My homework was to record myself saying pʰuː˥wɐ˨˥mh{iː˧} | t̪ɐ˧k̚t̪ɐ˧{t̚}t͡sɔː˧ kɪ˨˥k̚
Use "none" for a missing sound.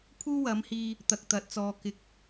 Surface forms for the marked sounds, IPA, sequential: iː˧, t̚

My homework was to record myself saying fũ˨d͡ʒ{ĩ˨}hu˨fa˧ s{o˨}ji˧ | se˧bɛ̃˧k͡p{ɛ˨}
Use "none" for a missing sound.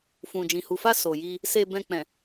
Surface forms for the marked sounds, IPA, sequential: ĩ˨, o˨, ɛ̃˨

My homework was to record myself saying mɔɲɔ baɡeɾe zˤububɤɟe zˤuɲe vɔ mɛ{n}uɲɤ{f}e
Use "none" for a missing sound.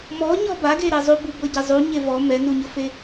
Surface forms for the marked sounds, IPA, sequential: n, f

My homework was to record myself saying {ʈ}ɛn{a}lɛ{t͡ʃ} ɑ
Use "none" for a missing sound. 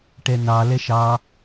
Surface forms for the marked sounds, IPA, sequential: ʈ, ɑ, ʃ

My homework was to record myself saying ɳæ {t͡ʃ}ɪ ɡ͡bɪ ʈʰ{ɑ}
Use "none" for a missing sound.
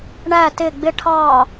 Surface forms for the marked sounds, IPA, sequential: t, ɑ

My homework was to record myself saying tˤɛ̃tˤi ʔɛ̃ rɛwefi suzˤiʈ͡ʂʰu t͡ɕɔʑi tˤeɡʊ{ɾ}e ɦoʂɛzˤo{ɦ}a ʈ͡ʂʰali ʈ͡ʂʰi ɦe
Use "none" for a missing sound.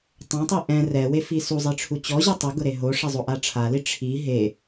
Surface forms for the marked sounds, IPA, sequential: ɾ, ʔ

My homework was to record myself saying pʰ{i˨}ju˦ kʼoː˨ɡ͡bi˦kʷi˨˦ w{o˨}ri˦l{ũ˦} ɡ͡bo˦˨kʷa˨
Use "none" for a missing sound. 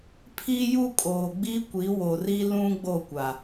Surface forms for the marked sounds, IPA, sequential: i˦, o˨, ũ˦

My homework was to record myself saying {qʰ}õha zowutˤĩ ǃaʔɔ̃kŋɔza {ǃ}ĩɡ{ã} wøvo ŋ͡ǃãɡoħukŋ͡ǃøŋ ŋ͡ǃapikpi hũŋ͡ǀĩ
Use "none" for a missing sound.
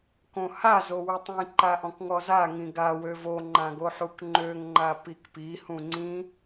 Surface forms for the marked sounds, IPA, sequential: k, ŋ, a

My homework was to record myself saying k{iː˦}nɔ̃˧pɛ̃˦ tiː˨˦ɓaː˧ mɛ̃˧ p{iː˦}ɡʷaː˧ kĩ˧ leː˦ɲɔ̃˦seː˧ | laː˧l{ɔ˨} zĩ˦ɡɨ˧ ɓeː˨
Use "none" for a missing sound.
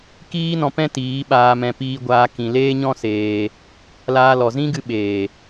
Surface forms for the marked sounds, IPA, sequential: iː˦, iː˧, ɔ˨

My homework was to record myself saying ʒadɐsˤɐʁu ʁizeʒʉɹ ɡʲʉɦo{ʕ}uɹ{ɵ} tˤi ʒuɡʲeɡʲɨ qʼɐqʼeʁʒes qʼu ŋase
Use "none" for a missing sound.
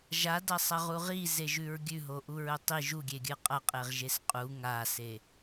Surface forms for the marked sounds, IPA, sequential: ʔ, ɵ

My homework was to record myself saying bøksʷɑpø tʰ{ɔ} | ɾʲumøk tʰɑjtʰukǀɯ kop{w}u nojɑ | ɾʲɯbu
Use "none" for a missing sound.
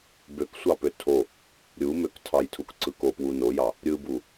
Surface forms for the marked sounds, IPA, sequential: o, w

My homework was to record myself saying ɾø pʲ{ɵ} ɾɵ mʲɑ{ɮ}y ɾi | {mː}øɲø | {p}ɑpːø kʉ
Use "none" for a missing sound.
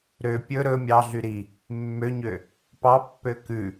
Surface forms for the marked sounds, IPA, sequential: ɵ, ɮ, mː, p

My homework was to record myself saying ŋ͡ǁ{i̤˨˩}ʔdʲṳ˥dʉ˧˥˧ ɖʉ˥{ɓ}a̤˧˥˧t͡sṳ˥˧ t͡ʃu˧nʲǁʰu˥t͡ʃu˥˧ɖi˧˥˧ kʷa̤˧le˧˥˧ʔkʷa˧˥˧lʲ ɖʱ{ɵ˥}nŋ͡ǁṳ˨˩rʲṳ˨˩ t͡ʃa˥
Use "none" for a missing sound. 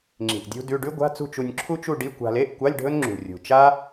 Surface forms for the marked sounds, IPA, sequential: i̤˨˩, ɡʷ, ɵ˥

